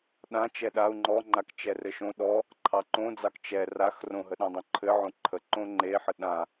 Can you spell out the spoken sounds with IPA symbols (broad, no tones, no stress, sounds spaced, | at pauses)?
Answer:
ɗ ã t͡ʃ ɛ ɗ a u̯ ŋ͡ǃ ɔ ŋ͡ǃ a k t͡ʃ ɛ r ɘ ʃ õ ɗ ɔ | ǃʰ ɑ ǃ õ d͡z ɑ k t͡ʃ ɛ r a x r õ ɦ ə ɗ ã dˤ õ ǃʰ ɘ ʕ õ ǃʰ ə ǃ õ ŋ͡ǃ e ħ ə ɗ ã